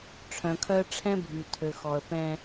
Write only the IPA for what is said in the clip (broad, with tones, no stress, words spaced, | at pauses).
ʈ͡ʂʰœ̃˨kʰœ˦ə̯ ʈ͡ʂʰɛ̃˦bʱy˨ tʰø˨xɔ˨ə̯ pɛ̃˦